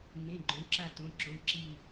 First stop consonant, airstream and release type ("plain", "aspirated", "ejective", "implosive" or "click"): click